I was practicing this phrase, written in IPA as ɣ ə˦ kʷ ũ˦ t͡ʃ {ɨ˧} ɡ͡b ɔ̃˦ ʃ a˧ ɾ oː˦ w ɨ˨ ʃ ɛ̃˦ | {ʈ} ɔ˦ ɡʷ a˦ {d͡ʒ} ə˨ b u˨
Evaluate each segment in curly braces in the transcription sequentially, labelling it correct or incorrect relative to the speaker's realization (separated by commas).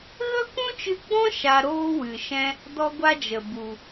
correct, incorrect, correct